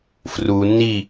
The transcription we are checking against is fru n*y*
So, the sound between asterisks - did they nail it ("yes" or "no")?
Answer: no